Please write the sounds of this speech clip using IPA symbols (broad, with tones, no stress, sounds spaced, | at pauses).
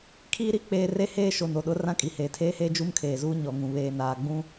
kʰ iː˦ ɾ i˦ k͡p eː˦ r e˦ h eː˦ ʃ o˨ n o˨ ɗ ʊ˨˦ r ã˦ kʼ i˨ h eː˨ tʰ eː˦ h eː˦ d͡ʒ u˦ m kʰ eː˨ z uː˦ ɲ ɔ˨ ŋ ũ˨ β eː˨ n aː˨ ɡ͡b ũ˦